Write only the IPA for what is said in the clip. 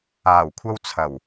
aː˨˩ w kʷʰ ɐ˥ w t͡sʰ ɐ˨˩ w

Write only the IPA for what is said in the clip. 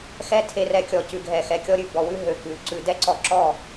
x ɛ˦ tʰ e˧ r ɛ˧ kʲ ɔ˨ c ʉ˨ ɡʱ ɛ˨ x ɛ˨ kʲ ɔ˧ ɾʲ ʉ˨ b ɔ˨ w ʉ˦ ɦ ø˨ k ʉ˨ ǀ ʉ˧ d ɛ˦ ǀ ɔ˧ ǁ ɔ˦˨

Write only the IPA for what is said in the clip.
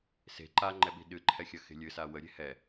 s e̤ ǃ a ŋ͡ǃ ɛ ɓ i̤ ɗ ɨ ǃʰ ɛ xʲ ɐ x e̤ lʲ ɨ s a w ə ɾʲ e̤ h ɛ

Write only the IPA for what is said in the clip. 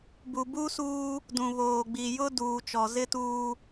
b u˨ b u˦ s uː˦ | d ũ˨ β oː˨ ɡ͡b i˨ j ʊ˦ d uː˨ t͡ʃ ɔ˨ z ɪ˦ t uː˦

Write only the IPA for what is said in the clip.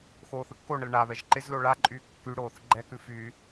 x oː θ ɯ kː o ɳ ə l ɳ a β ɛ ʒ ǃ ɪ z l o ɭ a ǃʼ yː kː y ɽ oː θ ɡ͡ǃ ɛ k ʉ f yː

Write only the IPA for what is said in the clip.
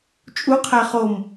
t͡ʃʼ u qʰ æ χ o m

